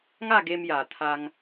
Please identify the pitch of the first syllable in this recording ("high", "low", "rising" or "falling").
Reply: falling